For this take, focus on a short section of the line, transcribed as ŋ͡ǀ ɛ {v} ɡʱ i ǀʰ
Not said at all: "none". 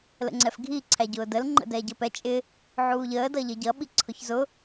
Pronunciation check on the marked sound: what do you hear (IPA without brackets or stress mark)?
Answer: f